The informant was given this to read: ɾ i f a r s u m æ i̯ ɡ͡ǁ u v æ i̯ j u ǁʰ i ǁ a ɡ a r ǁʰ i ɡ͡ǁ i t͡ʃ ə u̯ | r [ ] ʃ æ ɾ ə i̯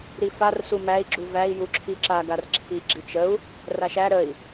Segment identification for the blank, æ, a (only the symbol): a